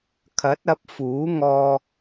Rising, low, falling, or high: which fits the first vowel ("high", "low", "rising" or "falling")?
rising